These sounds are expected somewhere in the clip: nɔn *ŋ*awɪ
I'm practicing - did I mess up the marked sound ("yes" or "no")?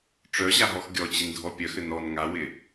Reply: no